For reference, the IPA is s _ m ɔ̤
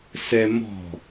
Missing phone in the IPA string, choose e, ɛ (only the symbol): ɛ